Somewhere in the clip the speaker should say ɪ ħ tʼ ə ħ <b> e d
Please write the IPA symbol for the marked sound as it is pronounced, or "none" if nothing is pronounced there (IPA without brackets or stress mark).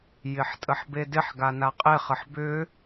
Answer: b